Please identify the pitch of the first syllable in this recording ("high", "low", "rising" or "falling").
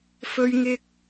high